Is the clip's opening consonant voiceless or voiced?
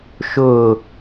voiceless